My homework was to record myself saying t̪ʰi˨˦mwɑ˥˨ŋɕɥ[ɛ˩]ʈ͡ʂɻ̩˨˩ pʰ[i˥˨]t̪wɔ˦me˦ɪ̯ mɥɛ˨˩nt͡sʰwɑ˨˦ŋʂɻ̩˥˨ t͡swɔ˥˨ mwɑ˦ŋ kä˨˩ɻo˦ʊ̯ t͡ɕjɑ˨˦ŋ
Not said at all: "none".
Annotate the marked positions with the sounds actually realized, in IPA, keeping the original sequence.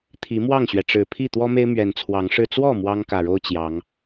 ɛ˩, i˥˨

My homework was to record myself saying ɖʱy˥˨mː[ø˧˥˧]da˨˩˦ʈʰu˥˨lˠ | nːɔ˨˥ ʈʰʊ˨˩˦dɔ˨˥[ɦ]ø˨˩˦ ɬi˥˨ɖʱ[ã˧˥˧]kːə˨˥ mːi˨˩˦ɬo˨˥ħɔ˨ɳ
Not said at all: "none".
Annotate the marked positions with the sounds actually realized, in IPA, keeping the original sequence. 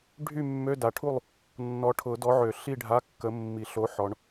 ø˧˥˧, ʕ, a˧˥˧

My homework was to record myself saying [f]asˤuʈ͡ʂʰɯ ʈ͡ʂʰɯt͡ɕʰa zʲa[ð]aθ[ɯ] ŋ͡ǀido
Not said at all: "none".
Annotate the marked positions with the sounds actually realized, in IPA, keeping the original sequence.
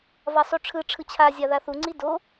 v, ð, u

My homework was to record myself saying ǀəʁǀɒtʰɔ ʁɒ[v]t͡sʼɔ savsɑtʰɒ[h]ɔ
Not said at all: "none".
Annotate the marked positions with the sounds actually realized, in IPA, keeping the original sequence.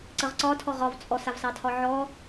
v, ʕ

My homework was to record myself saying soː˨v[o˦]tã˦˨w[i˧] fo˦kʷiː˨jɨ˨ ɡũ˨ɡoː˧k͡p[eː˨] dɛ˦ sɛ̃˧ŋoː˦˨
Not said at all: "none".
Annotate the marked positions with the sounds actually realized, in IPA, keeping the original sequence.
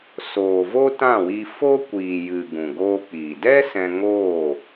o˦, i˧, iː˨

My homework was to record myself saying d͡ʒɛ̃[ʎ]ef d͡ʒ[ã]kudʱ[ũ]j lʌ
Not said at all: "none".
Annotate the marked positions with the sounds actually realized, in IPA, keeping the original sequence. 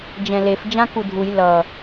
l, ã, u

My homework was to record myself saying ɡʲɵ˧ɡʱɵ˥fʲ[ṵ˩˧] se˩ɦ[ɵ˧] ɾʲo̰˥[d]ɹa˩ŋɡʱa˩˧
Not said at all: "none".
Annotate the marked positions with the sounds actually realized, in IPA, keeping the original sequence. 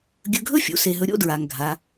ṵ˩˧, ɵ˧, d

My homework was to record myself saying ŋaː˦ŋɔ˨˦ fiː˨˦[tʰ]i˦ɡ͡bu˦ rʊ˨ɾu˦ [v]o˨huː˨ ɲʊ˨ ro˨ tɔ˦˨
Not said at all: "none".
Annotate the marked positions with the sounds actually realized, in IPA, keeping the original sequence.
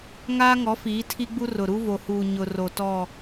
tʰ, v

